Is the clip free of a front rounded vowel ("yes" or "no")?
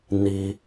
yes